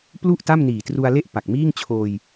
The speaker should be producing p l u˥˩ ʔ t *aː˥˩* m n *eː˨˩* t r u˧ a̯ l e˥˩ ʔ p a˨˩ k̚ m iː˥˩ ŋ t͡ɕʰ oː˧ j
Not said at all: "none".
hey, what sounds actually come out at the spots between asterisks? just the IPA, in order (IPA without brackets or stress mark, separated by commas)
a˥˩, iː˨˩